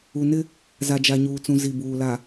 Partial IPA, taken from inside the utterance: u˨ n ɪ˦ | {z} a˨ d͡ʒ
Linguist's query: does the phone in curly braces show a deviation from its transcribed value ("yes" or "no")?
no